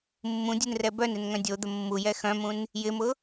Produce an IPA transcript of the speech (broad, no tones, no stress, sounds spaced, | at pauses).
mː ũ dʲ u n r ɛ b œ n ɪ n ŋ œ̃ dʲ o d̪ ə mː u j ɛ x œ̃ m ũ n | j ɪ m ʊ